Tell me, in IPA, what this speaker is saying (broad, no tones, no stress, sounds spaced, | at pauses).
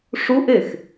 ʂ u ʔ e x